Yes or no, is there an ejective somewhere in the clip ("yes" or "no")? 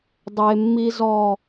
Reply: no